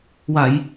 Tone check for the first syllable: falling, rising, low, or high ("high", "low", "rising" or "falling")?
low